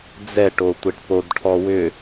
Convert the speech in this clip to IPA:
d͡zɛ ʈotʷeʈpodʈʰɔ wʏ

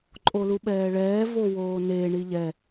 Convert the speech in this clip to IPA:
ǃʼoluɓɛːɭɛː vowoːne ɳiʎɛ

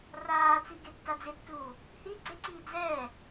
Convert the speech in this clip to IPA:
raːt͡siɡetːa d͡zɪtːuː | hi ɡ͡ǀeǀiː d͡zɛː

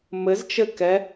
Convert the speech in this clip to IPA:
mɘzt͡ʃɘkɛ

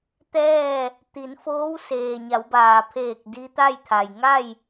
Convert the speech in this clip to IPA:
t̪ɛː˥˨ | t̪i˩˧nfoː˧˥w seː˩ɲa˩˧wbaː˩ pʰeː˧˩k̚ di˧˥t̪a˥˨jt̪ʰa˩j ŋa˥˨j

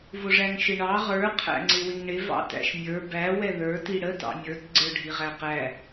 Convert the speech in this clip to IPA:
vʊʐæŋʃɪɳɑ ʁə˞ qʰæ̰ŋ͡ǀɪwɪŋɳɪ vɑ̰tæ̰ʃmʲə˞ bæ wɛðə˞ tiɽə tɑ̰mʲə˞t ɡ͡ǀə˞ɖʱiʁæqæ

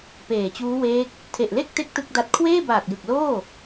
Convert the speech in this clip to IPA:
peː˨˩t͡ɕuː˦˥ weː˦˥k̚ | tʰe˨˩ʔle˥˩k̚te˦˥k̚ tɯ˥˩k̚da˦˥t̚ kʰweː˥˩baː˨˩k̚ jɯ˨˩k̚loː˥˩

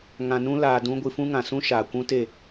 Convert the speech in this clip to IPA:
ŋã˧nũ˦ laː˧dũ˦ ɡʷɨ˧fũ˦ŋã˨ sũ˦ ʃaː˨kʷũ˦te˦˨

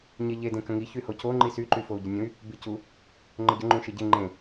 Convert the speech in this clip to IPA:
ɲeʎe dẽkə̃ŋi çyhoco ŋ͡ǃisy ǃyfou̯ɟənʲũy̯ | bicu | ŋ͡ǃəɟə ŋ͡ǃũʃeɟe ŋ͡ǃẽ

